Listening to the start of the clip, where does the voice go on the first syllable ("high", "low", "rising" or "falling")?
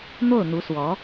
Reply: falling